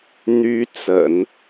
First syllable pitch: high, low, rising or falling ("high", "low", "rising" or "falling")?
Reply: high